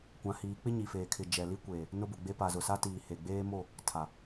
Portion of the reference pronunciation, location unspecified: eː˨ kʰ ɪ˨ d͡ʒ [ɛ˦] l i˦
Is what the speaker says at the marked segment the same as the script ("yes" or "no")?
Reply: no